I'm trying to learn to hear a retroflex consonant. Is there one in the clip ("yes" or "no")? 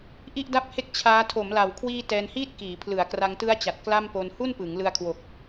no